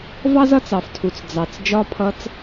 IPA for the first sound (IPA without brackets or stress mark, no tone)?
v